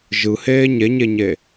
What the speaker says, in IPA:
ʒɯheː ɲeɲeɲe

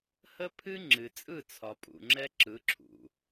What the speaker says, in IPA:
hə˦pʰɨ˦ ŋ͡ǁɨ˨t͡sʼɯ˦˨t͡sʰɒ˨pʼṵ˨ ŋ͡ǁɛ˦ ǁɯ˨˦ǁʰṵ˨

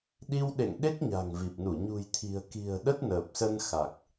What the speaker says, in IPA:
ɗi˧wɗḛ˧˨ŋ ɗe˦˥k̚ɲa̤˨˩ŋ vi˨˩p̚nu˧˩ ɲṳ˨˩jt̪ʰi̤˨˩ə̯ki̤˨˩ə̯ ɗə˦˥t̚nəː˨˩p̚sə˧nxa˨˩k̚

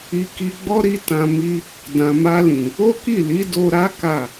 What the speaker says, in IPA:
i˧ki˧ɡ͡bɔ˦ɾi˦ tã˧ mi˧ | dã˨ma˧lĩ˨ | o˦ki˦˨li˨˦ do˧ɾa˦ ka˦˨

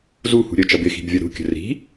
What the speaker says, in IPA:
zuhṳ ɾʲət͡ʃʌb ɪxi̤bvʲɒ ɾṳkʲə̤ ri̤

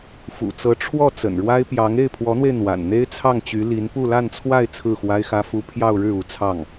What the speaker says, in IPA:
fṵ˨˩t͡sɤ˧˥ ʈ͡ʂʰwɔ˥˩ t͡sə̰˨˩nɻwa˥ɪ̯ pjɑ˧˥ŋ e˥˩ɪ̯pʰwɔ˧˥n̪we˧ɪ̯ n̪wa̰˨˩n n̪e˥ɪ̯t͡sʰɑ˥˩ŋt͡ɕy˧˥ li˧˥npu˥˧la˥˧nt͡sʰwa˥˧ɪ̯ t͡sʰɹ̩˥˩xwa˥ɪ̯xä˥fu˥ pʰjɑ˥˧ʊ̯ɻɻ̩˥˩ u˧˥ t͡sʰɑ˥˩ŋ

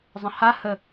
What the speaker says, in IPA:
zˤə̃ha hə

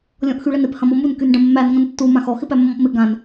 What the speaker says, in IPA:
lʲɔ̃ʔxyɭənɪp hɐ̃mɔmun kynɖɐ̃mːæn ŋɐ̃ntːu mãxɔ xɪpæmːɔ̃pmɪ ɡãn

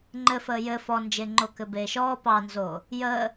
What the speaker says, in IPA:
ŋ͡ǃɘfəː jɘ fɔnd͡ʒeŋ͡ǃo kɘbeːʃɔː pɑnzo | jəː

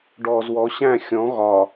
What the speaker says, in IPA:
ɖɔːzwɔ ɕæ̃ xʲɔ̃ ɣɒ

